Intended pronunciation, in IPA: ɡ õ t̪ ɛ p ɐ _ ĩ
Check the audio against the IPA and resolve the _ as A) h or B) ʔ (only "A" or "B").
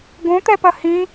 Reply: A